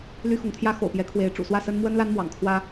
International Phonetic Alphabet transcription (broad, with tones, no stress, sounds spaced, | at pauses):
l y˦ x ʊ˨˦ ŋ t̪ʰ j ä˦ x o̰˨˩ ʊ̯ p j ɛ˨˦ kʰ w e˨˦ ɪ̯ ʈ͡ʂ ṵ˨˩ s w ä˥˨ s ə˦ n m w ə˦ n l a˦ n m w ɑ̰˨˩ ŋ kʰ w ä˦